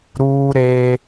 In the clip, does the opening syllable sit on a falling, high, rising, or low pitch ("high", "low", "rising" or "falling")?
high